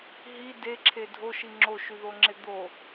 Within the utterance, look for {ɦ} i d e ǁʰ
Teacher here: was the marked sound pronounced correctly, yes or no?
yes